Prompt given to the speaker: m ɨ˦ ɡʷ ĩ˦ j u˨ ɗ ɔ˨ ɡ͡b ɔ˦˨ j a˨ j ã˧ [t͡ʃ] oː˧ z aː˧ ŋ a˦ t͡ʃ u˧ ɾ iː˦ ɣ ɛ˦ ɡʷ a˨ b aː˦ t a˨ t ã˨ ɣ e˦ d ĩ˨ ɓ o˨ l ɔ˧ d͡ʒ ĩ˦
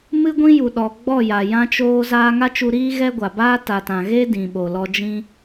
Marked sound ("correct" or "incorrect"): correct